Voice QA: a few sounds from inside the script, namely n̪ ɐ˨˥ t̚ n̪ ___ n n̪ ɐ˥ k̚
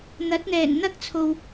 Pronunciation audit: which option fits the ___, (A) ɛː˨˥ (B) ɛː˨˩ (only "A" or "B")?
B